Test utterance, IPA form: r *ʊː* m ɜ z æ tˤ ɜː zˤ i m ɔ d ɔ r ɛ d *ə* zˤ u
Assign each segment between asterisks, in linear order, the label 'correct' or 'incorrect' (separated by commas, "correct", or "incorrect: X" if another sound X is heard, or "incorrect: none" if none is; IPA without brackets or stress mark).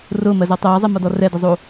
correct, correct